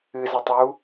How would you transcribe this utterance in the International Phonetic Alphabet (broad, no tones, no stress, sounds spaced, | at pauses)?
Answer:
ɨ z i tˤ j u